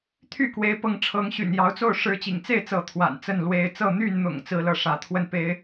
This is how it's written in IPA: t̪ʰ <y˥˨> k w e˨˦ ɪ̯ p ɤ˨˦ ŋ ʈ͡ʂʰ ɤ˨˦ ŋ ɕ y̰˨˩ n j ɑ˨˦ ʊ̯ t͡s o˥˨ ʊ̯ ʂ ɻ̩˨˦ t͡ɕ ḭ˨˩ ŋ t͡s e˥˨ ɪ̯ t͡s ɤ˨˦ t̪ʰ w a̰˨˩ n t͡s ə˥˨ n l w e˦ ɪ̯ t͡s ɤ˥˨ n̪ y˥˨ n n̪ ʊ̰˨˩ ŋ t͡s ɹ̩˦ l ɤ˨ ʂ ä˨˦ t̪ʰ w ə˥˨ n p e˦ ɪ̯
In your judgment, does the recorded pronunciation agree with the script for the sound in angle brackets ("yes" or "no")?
yes